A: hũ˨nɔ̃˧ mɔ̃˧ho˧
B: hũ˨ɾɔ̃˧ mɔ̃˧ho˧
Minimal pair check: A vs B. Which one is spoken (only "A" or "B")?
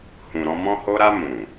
B